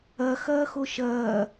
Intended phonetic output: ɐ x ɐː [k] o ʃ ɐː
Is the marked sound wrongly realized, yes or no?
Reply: yes